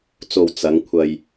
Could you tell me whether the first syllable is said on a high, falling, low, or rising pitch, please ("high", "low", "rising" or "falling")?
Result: low